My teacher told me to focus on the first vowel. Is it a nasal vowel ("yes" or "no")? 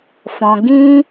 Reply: yes